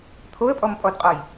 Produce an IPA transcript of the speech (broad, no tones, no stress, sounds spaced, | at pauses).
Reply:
t̪ʰ o ə̯ pʼ ɔ m pʼ ɔ d qʼ ɔ j